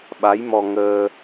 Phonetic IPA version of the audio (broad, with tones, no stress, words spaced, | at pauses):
ɓa˧˥jmɔ˧ŋəː˧